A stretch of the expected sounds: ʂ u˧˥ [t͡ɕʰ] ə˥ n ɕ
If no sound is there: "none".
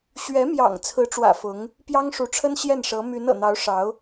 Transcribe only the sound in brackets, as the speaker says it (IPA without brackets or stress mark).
ʈ͡ʂʰ